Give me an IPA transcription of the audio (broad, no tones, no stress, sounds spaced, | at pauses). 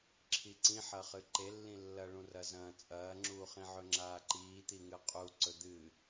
ǁʰ i ǀ ĩ ħ ɐ χ ɨ ǃ e lː ĩ lː ɐ ɭ ũ r ɐ z ɐ̃ː t͡sʼ ɐː ŋ͡ǁ uː χ ĩ ʕ ɵ ŋ͡ǁ aː ǃ iː t̪ i ŋ ɨ qʼ u ǀ ɵ d̪ ɨ